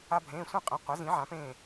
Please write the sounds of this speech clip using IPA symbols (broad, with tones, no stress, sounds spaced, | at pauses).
a˧ bʱ ẽː˩˧˩ sʷ ĩ˥˨ qʼ ĩ˩˧˩ qʷ ɛ˩˥ z ĩ˩˥ ʕ ã˩˥ p ẽː˥˨